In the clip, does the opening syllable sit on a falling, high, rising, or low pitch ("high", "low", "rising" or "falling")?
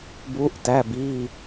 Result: rising